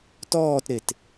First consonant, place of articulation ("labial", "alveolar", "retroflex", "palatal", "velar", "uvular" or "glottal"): alveolar